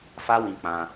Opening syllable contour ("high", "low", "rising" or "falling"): high